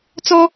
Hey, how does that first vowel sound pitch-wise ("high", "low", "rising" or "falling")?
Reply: high